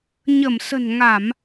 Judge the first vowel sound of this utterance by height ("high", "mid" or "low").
mid